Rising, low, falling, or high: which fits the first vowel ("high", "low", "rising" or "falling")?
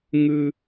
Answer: high